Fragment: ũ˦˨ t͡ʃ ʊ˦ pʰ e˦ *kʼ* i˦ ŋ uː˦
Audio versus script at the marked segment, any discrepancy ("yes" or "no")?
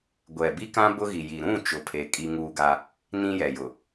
no